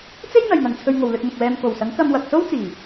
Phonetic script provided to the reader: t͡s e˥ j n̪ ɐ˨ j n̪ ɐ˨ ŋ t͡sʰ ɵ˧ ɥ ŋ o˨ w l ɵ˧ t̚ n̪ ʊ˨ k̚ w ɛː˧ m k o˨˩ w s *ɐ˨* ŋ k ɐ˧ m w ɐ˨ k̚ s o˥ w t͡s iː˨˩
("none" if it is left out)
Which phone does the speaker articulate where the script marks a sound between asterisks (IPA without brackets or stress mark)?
ɐ˨˥